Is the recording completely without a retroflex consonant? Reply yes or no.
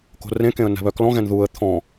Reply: yes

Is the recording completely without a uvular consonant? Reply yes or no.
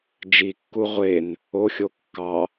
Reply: no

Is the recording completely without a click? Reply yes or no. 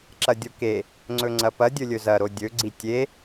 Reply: no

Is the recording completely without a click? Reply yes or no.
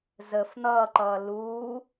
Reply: no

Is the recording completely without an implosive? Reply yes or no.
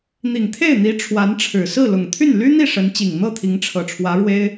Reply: yes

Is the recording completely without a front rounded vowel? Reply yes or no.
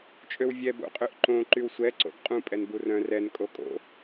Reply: no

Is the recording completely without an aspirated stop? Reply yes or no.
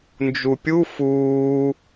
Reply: yes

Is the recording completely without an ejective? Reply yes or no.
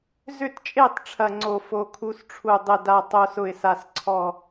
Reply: no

